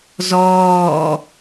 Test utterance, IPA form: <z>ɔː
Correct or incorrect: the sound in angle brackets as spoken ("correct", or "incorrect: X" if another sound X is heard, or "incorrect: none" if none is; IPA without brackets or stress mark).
correct